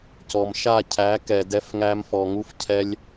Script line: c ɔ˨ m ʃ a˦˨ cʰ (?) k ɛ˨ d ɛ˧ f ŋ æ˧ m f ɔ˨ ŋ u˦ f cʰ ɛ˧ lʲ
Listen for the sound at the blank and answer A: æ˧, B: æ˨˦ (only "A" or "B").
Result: B